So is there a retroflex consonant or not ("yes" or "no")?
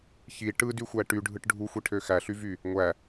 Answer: yes